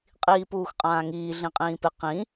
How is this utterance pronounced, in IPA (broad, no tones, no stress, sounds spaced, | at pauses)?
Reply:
qʼ iː p uː x qʼ ãː ŋ iː ɮ ĩ qʼ ĩː p ɪ q ĩ